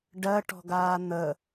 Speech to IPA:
ɖ ɜ ʈ ɔ̤ ɡ aː n̪ ə

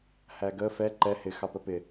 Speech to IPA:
h æ ɡ ə f ɛ ǃ ɛ h ɪ x ɑ p ə p ɪ

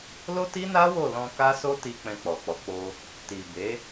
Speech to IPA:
l o˦ t i˦ n a˦ w o˦˨ l ɔ̃˧ k a˦ s o˦ t i˧ k͡p ɛ̃˧ k͡p ɔ˨ k͡p ɔ˨˦ k͡p o˧ | t i˨ b e˨˦

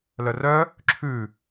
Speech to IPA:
l œ r œ | ǁʰ ʉ

